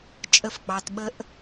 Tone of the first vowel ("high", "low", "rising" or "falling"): rising